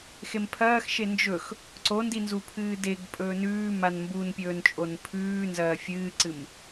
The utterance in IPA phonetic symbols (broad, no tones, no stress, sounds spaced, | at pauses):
x e m pʰ ɐː x ʃ e n d͡ʒ ɵ x | ǀ o n d i n z u pʰ ɨː d e ɡ pʼ ɵː n ʉː m a n m b u n pʲ ɵː n t͡ʃʼ o n pʰ ʉː n z ɐː fʲ ɨː ǀ ɨ m